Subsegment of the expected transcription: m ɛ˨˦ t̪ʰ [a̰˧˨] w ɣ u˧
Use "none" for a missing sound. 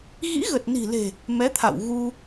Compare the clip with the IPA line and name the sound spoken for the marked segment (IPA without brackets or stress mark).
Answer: a̰˧˨